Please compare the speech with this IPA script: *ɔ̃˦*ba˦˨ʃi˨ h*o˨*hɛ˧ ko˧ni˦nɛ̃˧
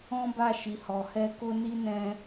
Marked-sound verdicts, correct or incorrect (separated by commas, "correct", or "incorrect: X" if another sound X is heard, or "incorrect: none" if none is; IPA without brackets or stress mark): correct, incorrect: ɔ˨